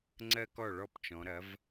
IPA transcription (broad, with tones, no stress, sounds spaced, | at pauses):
ŋ͡ǀ ɜ˦ k ɔ˥˩ ɭ ɔ˥˩ p t͡ʃ ɔ̃˨˦ ɾ ɐ˨˦ v